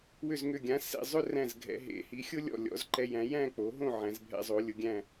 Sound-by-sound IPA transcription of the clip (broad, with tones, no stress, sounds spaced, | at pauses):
w ʏ˧˩ z ŋ ʏ˧˩ ɡʲ ã˩˧ s ḛ˧˩ zˤ ʏ˥˧ r æ̃˧˩ z ɡʱ ɛ̰˩˧ ɦ ḛ˩˧ h i˩˧ xʲ ʊ˥ lʲ ɔ̰˧˩ lʲ ɔ̰˩˧ z ǃ ɛ˧ j æ̃˩˧ j æ̃˥˧ k͡p o˩˧ ɦ õ˥˧ ʕ æ̃˩˧ z bʱ ɛ̰˧ zˤ o˩˧ lʲ ʊ˩˧ ɡʲ æ̃˥˧